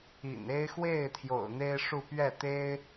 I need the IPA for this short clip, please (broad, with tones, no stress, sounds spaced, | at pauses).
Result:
ḭ˨˩ n e˥ ɪ̯ x w e˥˩ ɪ̯ t̪ʰ j o̰˨˩ ʊ̯ n̪ e˥ ɪ̯ ʂ u˥˧ p ɥ ɛ˥˩ t̪ e˥ ɪ̯